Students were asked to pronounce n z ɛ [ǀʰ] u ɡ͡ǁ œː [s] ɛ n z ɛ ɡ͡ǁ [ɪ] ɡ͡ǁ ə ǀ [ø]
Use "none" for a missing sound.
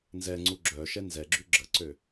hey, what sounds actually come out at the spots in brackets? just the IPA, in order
ŋ͡ǀ, ʃ, y, ø

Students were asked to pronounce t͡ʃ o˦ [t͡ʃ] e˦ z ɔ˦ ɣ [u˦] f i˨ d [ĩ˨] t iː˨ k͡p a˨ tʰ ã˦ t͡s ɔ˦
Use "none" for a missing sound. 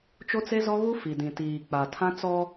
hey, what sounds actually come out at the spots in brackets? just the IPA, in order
t͡s, u˦, ĩ˨

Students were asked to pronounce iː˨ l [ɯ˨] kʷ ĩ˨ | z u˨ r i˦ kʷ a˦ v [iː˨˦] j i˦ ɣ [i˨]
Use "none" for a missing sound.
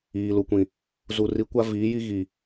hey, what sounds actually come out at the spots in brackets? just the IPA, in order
u˨, iː˨˦, i˨

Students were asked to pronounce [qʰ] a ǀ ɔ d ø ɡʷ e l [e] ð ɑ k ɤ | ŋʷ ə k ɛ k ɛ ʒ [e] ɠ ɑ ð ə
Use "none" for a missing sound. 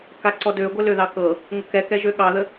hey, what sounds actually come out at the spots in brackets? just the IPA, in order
k, ø, ø

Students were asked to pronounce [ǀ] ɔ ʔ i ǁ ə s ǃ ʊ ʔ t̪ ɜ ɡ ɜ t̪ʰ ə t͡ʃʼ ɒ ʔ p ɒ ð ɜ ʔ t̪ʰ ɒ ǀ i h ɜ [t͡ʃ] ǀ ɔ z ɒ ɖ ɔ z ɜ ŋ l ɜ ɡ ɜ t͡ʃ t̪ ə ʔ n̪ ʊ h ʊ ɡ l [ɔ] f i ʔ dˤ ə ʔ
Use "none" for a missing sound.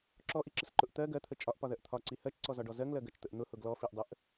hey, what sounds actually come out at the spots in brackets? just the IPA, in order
ǁ, t͡ʃ, ɔ

